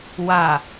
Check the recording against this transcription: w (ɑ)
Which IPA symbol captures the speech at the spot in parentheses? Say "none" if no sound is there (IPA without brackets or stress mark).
a